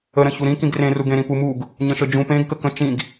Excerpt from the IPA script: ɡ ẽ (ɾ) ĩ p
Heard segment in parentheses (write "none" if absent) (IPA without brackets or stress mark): ɾ